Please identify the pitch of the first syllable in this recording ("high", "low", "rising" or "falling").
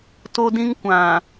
high